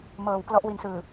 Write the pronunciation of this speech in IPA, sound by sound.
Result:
m ɤː˨˩ w k l ɔ˦˥ ʔ w i˨˩ n s ɯː˨˩

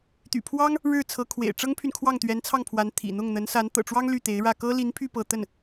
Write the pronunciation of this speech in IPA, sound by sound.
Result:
t̪ y̰˨˩ pʰ w ɑ˥ ŋ | ɻ ɻ̩˥˩ t͡sʰ ɤ˧˥ kʰ w ḛ˨˩ ɪ̯ ʈ͡ʂ ɤ˥ ŋ pʰ y˨ n kʰ w ɑ˥˩ ŋ t̪ ɥ ɛ˧˥ n t͡sʰ ɑ˥˩ ŋ pʰ w a˧˥ n t̪ʰ ḭ˨˩ n̪ ʊ˥˩ ŋ n̪ ə˧˥ n s a˧˥ n t̪ ɤ̰˨˩ ʈ͡ʂ w ɑ˥ ŋ l y˥˩ t̪ e˧˥ ɪ̯ ɻ ä˥˩ k ɤ˥ l i˧˥ n pʰ y˥˧ p ɤ˥˧ t̪ ə˥˩ n

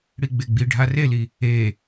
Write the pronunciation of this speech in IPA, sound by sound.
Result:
ɽ i ɡ͡b e ɡ͡b i ɖʱ a r e l i | e

